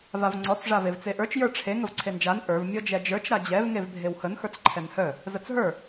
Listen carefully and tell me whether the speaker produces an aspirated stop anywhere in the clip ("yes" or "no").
yes